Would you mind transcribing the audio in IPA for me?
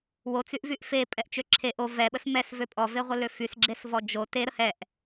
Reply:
wot͡syʔvyʔ fepʼɛʔt͡ʃø ǁʰe ʔo vɛɓəs mɛsvø pʼɔveʁʷəlø fysɡ͡ǁesvɔ d͡ʒo teɾə hɛʔ

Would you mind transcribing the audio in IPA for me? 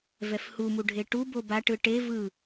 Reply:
vɛfhu muɖʱeʈu boba ʈɯʈe vɯ

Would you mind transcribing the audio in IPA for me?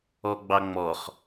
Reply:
ɔɡ͡bɑŋ͡mɔχ

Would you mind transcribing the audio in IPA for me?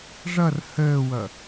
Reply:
ʐʌr həːwʌ

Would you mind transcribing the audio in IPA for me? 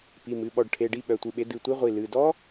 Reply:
pi˩˧˩mɨ˩˧˩ɓɔ˧˩ɖ ʈʰe˩˧˩ɖi˥˨ ɓœ˩˧˩tʷɨ˧˩ɓe˨˥ dɨ˩˧˩tʷi˦˥ʁʷi˩˧˩ lɨ˩˧˩ dɔ˦˥

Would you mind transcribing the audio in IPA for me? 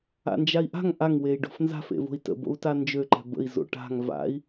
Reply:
a̰nd͡ʒai̯ʔa̤ŋ ʔaŋ wei̯ɖo̤fnza̤f ḛvo̤i̯tə̰ bo̰u̯tand͡ʒø ǃɛ̤bə̰i̯ zo̰ʈa̤ŋ va̰i̯

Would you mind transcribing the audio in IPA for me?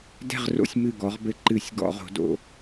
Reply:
dɛ̤˥˧ʁro̰˥˧sʲ mɨ˧˩ɡɔ˩˧ʁbɘ˧˩˧ ǃɨ˧˩˧sʲ ɡɔ̰˧˩˧ʁo̤˩˧do̰˩˧

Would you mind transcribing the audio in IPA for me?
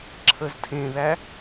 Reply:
ǁʰəztʰẽðæ

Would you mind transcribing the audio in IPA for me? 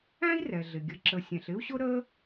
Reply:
æ̃˥i̯rɛ˩ɮɪ˩ ɡʲə˩ǁə˩ sʲɛ̃˩ɬɪ˥u̯ɕʊ˥ ɾə˦

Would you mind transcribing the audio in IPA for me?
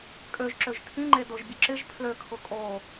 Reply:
kʼøʒ ǁøʒtʰĩŋ͡ǃe dʊʒbʲʊ ǁɪʒ pʰløkʰʊ kʼo

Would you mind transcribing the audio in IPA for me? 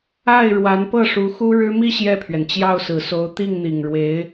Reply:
a˥˩ɪ̯ɻwa˧˥npɤ˥˩ ʂu˧˥xu˥ɻɻ̩˥ mi˥˧ ɕjɛ˥˩pʰɥɛ˩nt͡ɕjɑ˥˩ʊ̯sɹ̩˨˩ so˧˥ʊ̯t̪i˥˩ŋn̪i˨˩ŋɻwe˧˥ɪ̯

